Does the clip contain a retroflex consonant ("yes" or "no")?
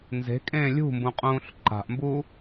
no